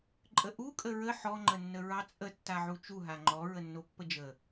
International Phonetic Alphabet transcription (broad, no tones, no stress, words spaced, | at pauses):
ǃʼəʔukʼə ɹə ħɔŋ͡ǃənːə ɹɑt͡sʼə tːaʕut͡ʃu ɦaŋ͡ǃɔ ɹənːopːəd͡ʒə